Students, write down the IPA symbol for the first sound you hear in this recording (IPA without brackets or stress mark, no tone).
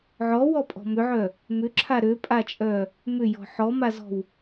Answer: ʕ